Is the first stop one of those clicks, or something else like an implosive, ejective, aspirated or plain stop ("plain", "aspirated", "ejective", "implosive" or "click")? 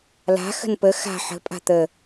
plain